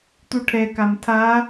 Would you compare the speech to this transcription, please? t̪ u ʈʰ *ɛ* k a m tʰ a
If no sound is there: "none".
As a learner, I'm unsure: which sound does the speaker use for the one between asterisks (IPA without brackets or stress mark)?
ɛ